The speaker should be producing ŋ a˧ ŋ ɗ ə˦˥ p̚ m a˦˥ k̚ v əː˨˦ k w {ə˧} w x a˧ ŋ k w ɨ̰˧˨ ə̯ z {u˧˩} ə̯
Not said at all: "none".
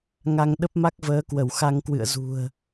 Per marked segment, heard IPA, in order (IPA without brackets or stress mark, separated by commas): ə˧˩, ṳ˨˩